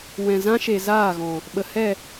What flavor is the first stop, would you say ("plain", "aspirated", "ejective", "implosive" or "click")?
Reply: implosive